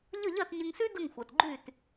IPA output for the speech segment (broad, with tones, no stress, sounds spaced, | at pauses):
ʎ ə˥˩ ʎ ɜ˥˩ t ɲ ɪ˧ ŋ s y˥ d ə˥˩ ŋ xʷ ɜ˩ t ɡ͡ǃ y˥˩ t